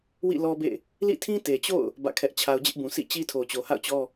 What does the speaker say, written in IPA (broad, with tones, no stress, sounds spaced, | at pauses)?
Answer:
w ḭ˦˨ l ɔ˦ b ḛ˦˨ | l ḭ˦˨ tʰ ĩ˦ t e˨ t͡ɕ o̰˦˨ ʊ̯ | b ä̰˦˨ kʰ ɛ˦ ʔ t͡ɕʰ a˦ ʊ̯ d͡ʑ ɪ˦ ʔ b ũ˨ s ḭ˦˨ t͡ɕ i˦ tʰ o˨ t͡ɕ o˨ h a̰˦˨ ʊ̯ t͡ɕ ɔ˦